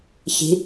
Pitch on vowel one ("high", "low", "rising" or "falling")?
rising